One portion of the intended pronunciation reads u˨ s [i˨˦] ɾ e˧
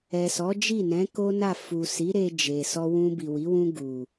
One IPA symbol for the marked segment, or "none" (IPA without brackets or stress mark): i˨˦